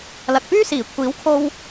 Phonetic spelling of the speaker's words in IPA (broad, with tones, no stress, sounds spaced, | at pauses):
l ɐ˨ k̚ p yː˥ s iː˨˩ kʷʰ iː˨˥ w kʰ o˧ w